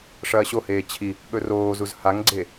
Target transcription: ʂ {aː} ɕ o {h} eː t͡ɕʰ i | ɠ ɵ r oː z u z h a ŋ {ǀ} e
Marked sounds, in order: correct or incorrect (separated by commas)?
incorrect, correct, incorrect